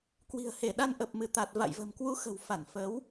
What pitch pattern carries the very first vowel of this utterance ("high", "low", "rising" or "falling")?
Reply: low